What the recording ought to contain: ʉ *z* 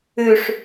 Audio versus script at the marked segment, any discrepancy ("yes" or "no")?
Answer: yes